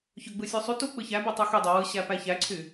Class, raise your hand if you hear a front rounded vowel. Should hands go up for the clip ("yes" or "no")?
yes